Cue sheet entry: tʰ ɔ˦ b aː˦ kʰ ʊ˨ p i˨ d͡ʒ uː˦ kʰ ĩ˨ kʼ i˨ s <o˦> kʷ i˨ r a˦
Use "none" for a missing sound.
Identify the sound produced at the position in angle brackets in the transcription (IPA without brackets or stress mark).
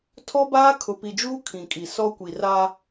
ɔ˦